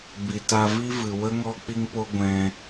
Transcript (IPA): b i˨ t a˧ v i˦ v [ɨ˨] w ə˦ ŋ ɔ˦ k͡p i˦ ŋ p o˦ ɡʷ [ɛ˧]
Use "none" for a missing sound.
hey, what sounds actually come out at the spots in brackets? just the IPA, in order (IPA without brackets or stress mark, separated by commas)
ɨ˨, ɛ̃˧